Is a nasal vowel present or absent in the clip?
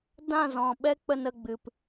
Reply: present